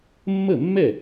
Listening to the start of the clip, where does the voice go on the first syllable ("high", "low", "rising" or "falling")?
falling